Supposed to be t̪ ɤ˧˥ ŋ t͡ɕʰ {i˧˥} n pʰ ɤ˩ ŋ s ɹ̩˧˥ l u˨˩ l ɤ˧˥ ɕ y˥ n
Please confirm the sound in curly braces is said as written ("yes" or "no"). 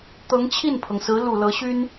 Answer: no